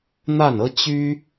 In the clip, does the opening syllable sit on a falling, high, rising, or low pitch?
falling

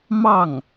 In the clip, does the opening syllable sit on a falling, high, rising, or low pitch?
falling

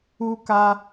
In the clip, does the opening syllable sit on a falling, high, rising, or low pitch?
high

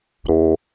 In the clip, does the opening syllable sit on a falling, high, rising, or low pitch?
low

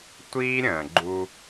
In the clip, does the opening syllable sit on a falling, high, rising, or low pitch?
high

